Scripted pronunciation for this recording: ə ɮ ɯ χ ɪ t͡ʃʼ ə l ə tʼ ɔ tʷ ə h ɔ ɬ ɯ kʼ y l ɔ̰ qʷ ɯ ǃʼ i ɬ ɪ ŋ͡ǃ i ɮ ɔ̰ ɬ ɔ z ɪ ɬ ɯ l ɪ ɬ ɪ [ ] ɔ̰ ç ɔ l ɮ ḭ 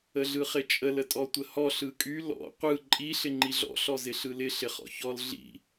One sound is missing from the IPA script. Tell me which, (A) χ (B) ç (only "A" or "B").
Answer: A